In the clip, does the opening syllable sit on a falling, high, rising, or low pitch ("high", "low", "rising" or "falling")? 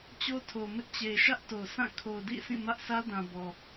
high